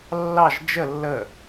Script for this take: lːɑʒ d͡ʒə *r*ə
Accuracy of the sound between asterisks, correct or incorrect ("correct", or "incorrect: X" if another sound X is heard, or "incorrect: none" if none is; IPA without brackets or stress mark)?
incorrect: lː